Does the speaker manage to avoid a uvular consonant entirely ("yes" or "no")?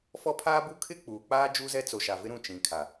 yes